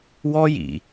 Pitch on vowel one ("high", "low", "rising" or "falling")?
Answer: high